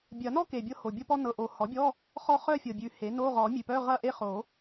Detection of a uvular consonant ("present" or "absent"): present